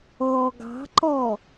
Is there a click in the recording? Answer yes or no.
yes